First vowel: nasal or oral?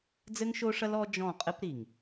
oral